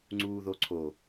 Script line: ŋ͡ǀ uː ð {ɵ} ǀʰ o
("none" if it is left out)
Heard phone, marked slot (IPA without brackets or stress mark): o